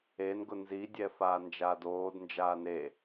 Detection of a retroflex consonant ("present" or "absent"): absent